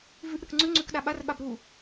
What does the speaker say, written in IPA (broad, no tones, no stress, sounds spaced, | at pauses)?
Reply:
v ʉ ʔ ɾ ɯ k ŋ͡ǀ ʉ ŋ͡ǀ ʉ k ɗ a ɓ a r ɓ a b ɾ u